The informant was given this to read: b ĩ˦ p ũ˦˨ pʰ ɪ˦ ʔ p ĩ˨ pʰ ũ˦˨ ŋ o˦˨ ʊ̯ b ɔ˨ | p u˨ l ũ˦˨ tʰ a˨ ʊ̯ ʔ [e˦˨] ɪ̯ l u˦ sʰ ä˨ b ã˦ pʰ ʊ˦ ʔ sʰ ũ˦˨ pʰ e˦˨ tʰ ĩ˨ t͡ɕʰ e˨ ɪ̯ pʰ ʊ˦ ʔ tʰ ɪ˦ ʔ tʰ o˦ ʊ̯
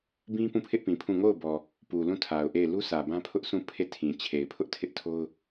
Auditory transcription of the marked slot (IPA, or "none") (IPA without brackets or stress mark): e˦˨